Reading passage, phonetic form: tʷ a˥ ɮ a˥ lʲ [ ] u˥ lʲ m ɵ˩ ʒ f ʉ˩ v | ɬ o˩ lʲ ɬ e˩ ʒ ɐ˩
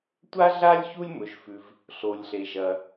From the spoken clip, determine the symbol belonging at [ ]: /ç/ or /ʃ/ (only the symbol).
ç